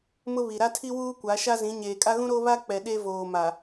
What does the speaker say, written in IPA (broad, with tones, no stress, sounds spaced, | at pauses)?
m ʊ˦ β i˨ ɾ a˦ tʰ i˦ w uː˦ kʷ a˨˦ ʃ a˦ z ĩ˨˦ ɲ eː˨ kʼ a˦ ɣ ũ˦ ɾ o˦ β a˦ k͡p ɛ˨ ɗ e˦ v oː˨ m a˨